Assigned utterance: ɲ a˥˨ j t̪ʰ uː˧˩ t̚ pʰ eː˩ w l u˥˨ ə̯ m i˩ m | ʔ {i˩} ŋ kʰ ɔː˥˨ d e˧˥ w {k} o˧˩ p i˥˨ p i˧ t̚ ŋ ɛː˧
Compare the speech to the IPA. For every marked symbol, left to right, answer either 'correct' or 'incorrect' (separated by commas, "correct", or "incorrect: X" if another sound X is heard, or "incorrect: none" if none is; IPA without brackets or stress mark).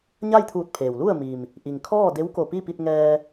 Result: correct, correct